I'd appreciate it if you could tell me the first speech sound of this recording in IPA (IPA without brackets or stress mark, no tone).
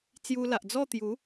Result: t͡s